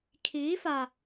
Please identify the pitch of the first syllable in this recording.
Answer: rising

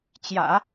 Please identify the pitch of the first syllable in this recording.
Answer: low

